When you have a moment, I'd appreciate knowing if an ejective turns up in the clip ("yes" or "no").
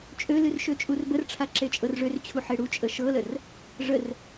yes